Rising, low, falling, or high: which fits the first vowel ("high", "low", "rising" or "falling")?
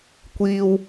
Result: high